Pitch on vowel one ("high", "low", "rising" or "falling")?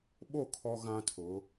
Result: falling